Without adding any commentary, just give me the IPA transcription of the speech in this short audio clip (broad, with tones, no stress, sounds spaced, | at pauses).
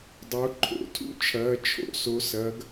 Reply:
dˤ o˩˧ ǃʰ o̰˩˧ tʰ ṵ˦ t͡ʃʰ ɐː˩˧ t͡ʃʰ o̰˧˩˧ s o˩˧ s ɐː˩˧ ɡ